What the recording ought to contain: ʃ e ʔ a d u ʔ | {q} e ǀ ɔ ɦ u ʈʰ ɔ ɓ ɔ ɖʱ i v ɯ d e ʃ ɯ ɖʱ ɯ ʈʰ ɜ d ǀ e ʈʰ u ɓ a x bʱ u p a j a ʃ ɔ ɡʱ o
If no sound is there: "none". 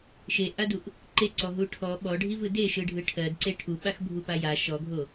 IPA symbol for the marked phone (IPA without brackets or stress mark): ǃ